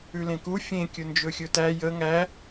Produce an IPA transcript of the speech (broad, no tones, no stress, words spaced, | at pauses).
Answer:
ʉlẽku fʲẽ kʲɵnd͡ʒɵxʲɵtæ jə ŋæ